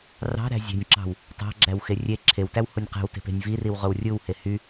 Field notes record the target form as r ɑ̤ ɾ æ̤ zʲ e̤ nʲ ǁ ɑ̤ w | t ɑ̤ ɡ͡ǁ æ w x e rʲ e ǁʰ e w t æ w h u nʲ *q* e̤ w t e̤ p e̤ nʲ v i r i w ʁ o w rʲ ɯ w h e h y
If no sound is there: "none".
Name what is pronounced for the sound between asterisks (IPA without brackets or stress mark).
q